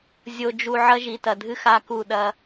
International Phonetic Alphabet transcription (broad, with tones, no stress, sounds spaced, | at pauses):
zʲ o˨ d͡ʒ u˨ ʕ ɐ˦ ʒ i˨ t ɐ˨ dʱ ɨ˦ x a˦ k u˦˨ ɗ ɐ˦